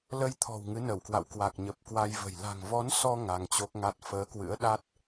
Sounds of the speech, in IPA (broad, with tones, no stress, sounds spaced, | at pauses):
l ə˧ j t̪ʰ ɔ̤˨˩ w ŋ ɨ˨˦ n ə˧˩ w k w a̰˧˨ w k w a˨˩ k̚ ɲ ə˨˩ p̚ k w a˧ j v ə̤˨˩ j l a̤˨˩ ŋ v ɔ˨˦ n s ɔ˧ ŋ a˧ ŋ t͡ɕ o˦˥ k̚ ŋ a˦˥ t̚ f əː˨˦ k w ɨ̰˧˥ ə̯ ɗ a˦˥ t̚